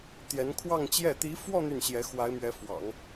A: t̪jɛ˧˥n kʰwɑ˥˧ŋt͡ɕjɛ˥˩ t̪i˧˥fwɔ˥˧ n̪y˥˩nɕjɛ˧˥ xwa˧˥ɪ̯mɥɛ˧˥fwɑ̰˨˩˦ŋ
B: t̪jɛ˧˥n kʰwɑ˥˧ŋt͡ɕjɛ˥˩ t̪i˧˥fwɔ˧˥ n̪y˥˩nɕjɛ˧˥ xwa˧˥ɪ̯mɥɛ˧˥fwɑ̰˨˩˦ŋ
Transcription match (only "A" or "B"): A